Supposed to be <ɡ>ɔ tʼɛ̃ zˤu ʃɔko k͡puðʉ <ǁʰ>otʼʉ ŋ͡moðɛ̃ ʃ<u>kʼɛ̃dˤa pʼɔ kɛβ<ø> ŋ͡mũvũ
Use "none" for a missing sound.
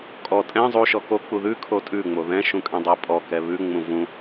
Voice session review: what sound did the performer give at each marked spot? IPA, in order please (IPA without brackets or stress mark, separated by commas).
kʼ, kʰ, ũ, ʉ